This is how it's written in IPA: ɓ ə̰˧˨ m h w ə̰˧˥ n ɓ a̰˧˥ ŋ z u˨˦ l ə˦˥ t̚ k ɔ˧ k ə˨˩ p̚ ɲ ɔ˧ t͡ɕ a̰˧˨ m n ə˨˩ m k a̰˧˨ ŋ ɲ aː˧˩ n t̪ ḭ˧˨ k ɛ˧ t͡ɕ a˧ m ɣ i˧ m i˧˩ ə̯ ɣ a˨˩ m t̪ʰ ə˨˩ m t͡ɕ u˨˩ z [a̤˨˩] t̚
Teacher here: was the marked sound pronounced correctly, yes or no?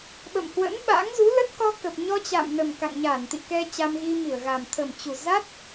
no